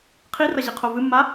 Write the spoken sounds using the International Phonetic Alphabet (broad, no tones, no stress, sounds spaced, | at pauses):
qʰ i r ɐ ʑ i qʰ o v ɨ mː a